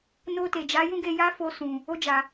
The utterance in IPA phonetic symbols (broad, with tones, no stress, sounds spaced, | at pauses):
n o˧ t e˨ d͡ʒ a˨˦ j ũ˦ ɡ e˧ j a˦ f o˧ s ũ˨ | o˧ d͡ʒ a˨